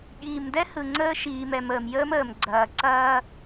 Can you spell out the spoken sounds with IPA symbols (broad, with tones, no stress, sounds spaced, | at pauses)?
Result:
ɠ iː˨ m d ɛ˦ h ɯ˨ ŋ͡ǀ əː˦ ʃ iː˨ m ɛ˨ m əː˨ m j əː˦ m əː˨ m ɡ͡ǀ ɐː˨ ǀ ɐː˦